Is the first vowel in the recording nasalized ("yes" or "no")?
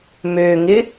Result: no